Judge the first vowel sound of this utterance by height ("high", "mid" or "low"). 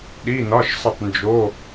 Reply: high